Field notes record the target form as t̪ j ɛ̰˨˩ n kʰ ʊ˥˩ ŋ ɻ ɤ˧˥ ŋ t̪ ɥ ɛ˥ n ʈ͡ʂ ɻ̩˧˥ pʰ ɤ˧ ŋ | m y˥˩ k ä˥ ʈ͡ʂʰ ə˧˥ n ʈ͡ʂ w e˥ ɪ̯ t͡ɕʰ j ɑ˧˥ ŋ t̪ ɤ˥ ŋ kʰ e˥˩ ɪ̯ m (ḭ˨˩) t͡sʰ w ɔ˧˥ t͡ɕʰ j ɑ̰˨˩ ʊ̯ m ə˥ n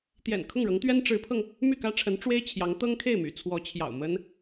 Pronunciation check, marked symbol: incorrect: y̰˨˩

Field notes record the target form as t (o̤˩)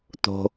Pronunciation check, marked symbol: correct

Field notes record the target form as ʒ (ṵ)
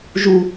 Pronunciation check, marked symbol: incorrect: u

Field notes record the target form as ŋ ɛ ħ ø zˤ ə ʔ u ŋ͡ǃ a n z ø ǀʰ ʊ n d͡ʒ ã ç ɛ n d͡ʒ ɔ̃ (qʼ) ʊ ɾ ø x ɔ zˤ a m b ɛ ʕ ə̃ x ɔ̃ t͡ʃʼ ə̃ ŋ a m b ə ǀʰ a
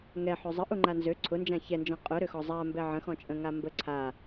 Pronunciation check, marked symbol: correct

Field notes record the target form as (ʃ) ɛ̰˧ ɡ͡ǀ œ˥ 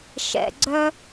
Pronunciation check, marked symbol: correct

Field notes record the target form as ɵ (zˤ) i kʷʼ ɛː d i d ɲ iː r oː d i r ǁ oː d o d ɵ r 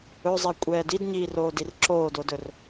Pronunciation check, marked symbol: correct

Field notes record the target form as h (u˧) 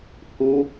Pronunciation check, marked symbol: correct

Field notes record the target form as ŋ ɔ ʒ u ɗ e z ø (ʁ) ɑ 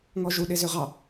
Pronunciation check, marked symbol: correct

